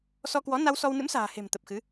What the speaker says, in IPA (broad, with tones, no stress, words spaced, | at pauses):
sɔ˧kwɔ˨˦ na˧wsɔ˧wnɨ̰˧˥msa̤ː˨˩ he̤˨˩mt̪ə˨˩p̚xɨ˨˦